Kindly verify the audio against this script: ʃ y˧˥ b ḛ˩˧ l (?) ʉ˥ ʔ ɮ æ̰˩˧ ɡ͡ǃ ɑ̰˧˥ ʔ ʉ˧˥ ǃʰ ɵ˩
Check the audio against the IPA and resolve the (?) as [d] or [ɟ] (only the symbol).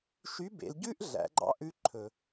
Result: ɟ